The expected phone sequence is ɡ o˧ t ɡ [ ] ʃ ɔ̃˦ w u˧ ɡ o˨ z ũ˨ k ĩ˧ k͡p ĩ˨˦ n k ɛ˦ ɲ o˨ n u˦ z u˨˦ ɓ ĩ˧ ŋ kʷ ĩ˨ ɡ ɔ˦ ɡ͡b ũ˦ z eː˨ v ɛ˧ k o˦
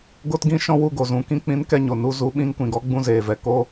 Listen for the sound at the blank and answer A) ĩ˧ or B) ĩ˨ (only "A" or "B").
A